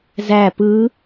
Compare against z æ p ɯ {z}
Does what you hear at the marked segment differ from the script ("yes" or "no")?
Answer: yes